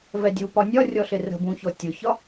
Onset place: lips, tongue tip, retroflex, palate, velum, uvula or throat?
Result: lips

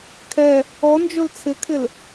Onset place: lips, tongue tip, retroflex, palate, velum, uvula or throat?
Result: velum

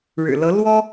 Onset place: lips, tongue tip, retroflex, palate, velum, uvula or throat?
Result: retroflex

